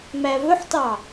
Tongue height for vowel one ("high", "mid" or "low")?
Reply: low